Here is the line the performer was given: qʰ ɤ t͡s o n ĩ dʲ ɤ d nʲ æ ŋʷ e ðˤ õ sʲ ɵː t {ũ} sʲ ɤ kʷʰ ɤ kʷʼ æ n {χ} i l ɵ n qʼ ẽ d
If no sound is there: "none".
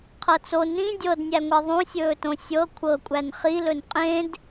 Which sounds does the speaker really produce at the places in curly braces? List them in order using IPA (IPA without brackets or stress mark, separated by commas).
õ, χ